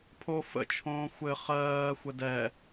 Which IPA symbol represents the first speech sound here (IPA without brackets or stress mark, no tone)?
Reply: pʰ